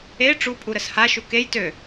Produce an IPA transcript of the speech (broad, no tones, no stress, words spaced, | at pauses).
e ʈ͡ʂupʼuɾəs haʃu kej tø